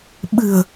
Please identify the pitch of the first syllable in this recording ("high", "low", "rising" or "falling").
low